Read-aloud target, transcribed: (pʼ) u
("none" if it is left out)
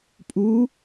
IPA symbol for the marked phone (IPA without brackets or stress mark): pʼ